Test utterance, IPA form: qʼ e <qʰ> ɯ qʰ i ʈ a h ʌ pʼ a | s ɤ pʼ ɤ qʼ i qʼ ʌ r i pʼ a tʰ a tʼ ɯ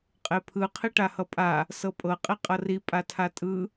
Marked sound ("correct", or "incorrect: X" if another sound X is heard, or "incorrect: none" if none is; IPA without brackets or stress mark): incorrect: pʰ